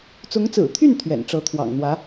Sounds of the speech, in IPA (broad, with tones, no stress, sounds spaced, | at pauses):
t͡s ʊ˧˥ ŋ t͡s ɹ̩˨˩ t̪ʰ y˥˩ n t̪ʰ ɥ ɛ̰˨˩ n ʈ͡ʂ ɤ˧˥ t̪ʰ w ɑ̰˨˩ ŋ n̪ w ä˧˥